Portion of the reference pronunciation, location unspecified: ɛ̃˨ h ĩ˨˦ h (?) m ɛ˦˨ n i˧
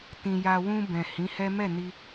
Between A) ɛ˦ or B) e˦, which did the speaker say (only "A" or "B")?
A